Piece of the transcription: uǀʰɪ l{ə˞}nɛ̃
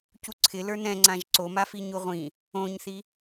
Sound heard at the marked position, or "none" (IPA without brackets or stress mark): ə˞